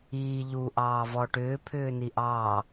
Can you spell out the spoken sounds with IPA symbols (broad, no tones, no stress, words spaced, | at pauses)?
iː ʎuʔɑːvɔ ʈʏːpʰʏːni ʔɑ